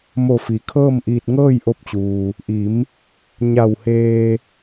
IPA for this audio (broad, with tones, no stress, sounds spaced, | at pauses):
m o˧˩ f i˩ kʰ ɤː˥˨ m ʔ iː˧ t̚ ŋ ɤː˥˨ j ʔ o˧ p̚ t͡ɕ uː˩ | ʔ i˩˧ m | ɲ a˧˩ w h eː˧